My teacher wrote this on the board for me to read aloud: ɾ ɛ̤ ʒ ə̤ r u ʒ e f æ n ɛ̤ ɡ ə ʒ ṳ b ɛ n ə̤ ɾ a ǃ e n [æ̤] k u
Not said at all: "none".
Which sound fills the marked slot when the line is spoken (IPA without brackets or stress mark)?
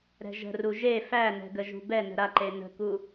ə̤